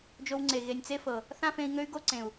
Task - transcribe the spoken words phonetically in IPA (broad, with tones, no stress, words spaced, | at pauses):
d͡ʒo˧wŋ͡ǀe˨ ɣe˨nʲt͡se˦fɤ˨ | θã˦fẽ˧i̯ŋø˦y̯ɡo˦ ǀẽ˨u̯